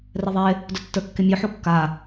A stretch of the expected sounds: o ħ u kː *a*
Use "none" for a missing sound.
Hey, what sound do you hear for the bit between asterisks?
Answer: a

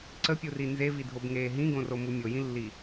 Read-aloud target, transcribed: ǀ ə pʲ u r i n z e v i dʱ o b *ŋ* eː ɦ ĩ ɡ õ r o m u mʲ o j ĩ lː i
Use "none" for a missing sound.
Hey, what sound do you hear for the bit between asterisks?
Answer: ŋ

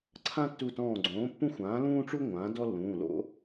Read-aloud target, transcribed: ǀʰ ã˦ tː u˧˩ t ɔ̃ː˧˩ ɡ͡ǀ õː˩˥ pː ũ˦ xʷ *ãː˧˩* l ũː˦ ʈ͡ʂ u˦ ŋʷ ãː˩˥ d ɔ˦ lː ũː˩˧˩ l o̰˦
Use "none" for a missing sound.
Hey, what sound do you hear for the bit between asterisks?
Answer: ãː˩˥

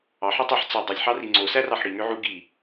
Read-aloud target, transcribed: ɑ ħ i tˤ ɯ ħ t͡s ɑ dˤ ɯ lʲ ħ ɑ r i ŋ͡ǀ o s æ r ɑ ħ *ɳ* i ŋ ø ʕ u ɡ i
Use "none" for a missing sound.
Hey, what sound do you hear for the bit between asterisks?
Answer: ɽ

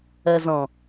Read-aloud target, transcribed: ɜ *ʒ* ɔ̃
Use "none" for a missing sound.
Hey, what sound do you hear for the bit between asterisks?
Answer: z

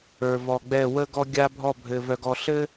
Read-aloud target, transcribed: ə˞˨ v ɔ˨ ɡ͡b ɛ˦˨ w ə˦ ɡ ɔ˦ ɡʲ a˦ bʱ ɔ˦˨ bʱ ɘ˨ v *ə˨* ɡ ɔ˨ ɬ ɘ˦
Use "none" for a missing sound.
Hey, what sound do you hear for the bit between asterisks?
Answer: œ˨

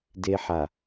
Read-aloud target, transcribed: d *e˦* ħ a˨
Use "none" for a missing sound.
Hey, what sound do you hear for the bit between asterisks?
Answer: e˦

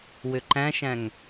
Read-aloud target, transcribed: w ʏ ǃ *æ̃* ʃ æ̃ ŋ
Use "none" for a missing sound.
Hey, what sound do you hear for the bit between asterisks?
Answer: æ̃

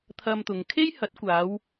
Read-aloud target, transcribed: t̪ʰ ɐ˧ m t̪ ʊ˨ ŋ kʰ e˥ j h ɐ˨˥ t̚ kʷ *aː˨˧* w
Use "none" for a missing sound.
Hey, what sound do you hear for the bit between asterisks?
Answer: aː˨˧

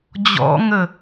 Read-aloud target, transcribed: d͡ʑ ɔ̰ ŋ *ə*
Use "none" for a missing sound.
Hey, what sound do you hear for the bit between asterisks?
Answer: ə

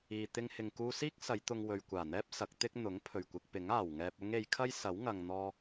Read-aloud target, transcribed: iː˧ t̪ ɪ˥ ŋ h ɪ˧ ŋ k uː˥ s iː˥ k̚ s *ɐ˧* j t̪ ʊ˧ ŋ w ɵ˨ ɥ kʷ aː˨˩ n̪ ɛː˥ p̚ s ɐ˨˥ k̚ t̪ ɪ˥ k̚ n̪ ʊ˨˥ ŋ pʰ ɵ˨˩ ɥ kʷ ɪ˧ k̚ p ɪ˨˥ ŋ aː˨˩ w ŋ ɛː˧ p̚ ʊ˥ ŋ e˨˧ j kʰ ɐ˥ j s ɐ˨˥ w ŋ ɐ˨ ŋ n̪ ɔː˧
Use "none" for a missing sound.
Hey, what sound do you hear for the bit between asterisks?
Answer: ɐ˨˧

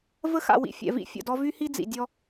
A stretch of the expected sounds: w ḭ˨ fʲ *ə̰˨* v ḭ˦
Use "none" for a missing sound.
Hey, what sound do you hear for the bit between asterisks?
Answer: ɛ̰˨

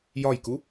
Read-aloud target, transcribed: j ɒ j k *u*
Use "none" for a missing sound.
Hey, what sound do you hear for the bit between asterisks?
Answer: u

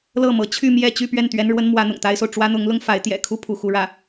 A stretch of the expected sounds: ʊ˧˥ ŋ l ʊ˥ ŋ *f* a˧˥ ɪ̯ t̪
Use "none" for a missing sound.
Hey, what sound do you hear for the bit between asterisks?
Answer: f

